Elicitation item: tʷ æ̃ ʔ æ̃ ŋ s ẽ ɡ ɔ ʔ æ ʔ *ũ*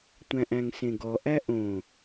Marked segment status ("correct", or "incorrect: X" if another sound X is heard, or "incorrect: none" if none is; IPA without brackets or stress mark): incorrect: õ